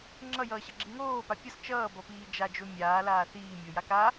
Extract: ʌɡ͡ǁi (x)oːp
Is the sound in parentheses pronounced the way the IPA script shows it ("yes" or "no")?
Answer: no